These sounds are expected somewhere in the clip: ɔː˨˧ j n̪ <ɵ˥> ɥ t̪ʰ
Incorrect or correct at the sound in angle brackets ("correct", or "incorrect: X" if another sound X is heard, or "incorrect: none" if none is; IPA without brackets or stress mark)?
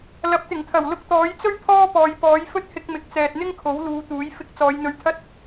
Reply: incorrect: ɵ˧